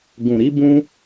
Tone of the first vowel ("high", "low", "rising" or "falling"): low